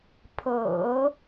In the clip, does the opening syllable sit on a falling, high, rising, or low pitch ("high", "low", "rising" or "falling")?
low